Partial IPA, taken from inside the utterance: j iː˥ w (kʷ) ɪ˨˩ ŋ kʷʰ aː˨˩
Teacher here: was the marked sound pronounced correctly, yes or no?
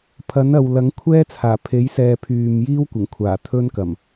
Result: yes